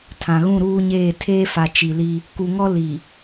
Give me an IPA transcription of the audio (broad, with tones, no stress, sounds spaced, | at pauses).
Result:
tʰ ã˨ ɣ ũ˦˨ ɾ uː˦ ɲ eː˦˨ tʰ eː˦ f a˨ t͡ʃ i˨ l i˦ | k u˨ ŋ ɔ˦ l i˨